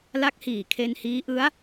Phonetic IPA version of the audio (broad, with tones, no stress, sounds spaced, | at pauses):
l a˦˥ k̚ h iː˨˩ kʰ e˧ n h iː˦˥ ʔ ɯ˦˥ a̯